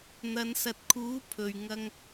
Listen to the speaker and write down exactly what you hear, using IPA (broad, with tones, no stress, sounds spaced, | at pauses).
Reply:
n̪ ɐ˨˧ n s ɐ˨ t̚ kʰ uː˨˥ pʰ ɵ˨ ɥ ŋ ɐ˧ ŋ